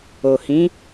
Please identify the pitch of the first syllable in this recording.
low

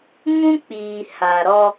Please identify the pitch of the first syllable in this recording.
high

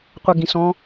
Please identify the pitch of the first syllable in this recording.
low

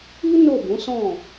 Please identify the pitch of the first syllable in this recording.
high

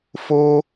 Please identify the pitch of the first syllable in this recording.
high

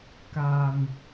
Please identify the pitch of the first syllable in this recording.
low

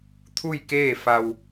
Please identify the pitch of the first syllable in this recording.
falling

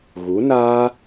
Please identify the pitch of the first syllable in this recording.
rising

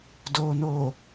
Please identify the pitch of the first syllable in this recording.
low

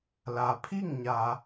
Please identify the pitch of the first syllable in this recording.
low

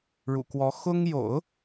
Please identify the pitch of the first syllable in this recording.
low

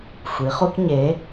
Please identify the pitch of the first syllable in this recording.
rising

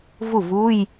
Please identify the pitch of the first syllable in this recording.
falling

